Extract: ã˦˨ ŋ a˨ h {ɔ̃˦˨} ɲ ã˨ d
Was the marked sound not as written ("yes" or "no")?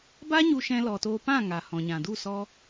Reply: yes